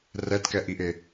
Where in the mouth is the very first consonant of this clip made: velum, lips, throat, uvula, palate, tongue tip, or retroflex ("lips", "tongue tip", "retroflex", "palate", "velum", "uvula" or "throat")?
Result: tongue tip